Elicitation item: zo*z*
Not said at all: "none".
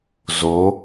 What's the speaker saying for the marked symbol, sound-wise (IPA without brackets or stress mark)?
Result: none